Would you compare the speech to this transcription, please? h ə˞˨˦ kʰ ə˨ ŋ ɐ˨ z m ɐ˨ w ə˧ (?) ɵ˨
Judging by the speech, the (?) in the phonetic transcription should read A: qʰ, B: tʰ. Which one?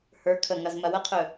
A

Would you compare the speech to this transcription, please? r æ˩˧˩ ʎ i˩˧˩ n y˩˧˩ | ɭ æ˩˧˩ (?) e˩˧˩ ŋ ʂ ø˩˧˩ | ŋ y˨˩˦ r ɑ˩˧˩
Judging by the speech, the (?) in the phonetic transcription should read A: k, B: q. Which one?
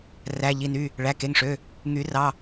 A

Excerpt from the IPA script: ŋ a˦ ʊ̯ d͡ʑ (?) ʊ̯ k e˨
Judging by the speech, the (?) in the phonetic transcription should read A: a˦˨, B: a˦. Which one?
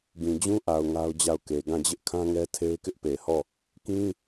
A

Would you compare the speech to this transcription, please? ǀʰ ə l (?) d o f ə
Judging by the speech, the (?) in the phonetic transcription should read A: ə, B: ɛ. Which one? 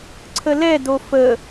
B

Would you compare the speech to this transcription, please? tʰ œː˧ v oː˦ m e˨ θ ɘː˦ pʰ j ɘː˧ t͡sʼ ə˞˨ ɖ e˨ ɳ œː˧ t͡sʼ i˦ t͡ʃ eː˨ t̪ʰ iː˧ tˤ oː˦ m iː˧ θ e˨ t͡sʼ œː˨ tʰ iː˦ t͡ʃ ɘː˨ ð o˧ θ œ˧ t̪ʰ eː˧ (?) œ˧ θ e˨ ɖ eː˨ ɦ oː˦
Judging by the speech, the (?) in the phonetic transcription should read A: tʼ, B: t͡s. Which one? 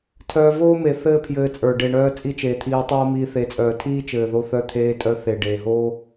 A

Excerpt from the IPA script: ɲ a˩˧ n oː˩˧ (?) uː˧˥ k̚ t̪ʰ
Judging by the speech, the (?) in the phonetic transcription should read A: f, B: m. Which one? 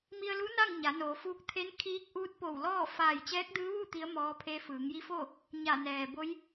A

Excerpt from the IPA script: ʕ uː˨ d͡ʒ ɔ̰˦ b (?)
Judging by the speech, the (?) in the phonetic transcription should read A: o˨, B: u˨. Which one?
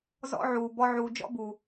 B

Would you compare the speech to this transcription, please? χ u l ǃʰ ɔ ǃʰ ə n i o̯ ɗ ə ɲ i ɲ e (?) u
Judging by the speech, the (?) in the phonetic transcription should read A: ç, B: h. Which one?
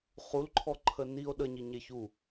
A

